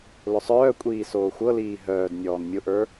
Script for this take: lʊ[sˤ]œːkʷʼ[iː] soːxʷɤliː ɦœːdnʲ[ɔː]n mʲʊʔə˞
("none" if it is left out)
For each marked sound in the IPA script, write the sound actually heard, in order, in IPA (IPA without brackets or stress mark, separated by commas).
sˤ, iː, ɔː